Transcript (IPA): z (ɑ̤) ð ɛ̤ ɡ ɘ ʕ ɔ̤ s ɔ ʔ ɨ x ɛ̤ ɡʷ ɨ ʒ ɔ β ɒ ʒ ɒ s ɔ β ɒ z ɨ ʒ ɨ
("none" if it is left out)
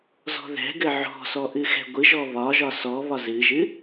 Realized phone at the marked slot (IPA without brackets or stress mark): ɔ̤